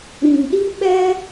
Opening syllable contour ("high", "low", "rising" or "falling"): low